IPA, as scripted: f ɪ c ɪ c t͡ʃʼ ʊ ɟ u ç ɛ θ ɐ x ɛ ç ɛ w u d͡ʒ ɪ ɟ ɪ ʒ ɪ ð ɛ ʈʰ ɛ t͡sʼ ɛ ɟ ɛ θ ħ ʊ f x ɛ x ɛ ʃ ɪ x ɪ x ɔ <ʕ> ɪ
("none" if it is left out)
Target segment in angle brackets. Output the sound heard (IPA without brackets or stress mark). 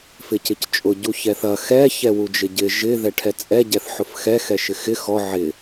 ʕ